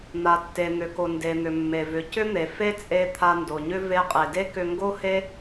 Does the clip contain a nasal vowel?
no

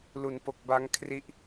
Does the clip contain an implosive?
no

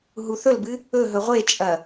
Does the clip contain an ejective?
yes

